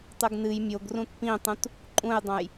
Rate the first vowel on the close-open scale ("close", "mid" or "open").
close